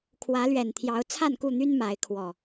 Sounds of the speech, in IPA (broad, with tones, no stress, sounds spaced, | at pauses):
kʰ w ä˨˦ l ɥ ɛ˨˩ n t̪ʰ j ɑ˨˦ ʊ̯ t͡sʰ a˥˨ n k u˥˨ n̪ y˦ n m a˨˦ ɪ̯ kʰ w ɔ˨˩